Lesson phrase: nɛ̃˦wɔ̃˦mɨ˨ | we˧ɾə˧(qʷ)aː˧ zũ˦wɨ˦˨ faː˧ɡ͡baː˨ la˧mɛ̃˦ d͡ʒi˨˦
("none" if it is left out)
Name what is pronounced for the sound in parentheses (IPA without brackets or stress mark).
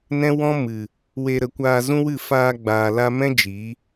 kʷ